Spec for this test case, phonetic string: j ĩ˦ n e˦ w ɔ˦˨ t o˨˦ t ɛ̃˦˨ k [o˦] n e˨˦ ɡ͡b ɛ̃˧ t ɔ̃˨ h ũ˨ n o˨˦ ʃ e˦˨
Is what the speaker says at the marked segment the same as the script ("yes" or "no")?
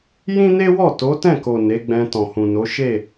no